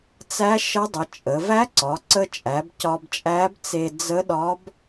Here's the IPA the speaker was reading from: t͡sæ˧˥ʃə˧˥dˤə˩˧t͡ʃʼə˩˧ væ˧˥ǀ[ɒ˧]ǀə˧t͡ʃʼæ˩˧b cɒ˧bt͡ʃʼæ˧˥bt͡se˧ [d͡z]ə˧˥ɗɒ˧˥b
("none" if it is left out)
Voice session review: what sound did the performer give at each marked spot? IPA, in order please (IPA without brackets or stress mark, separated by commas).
ɒ˩˧, d͡z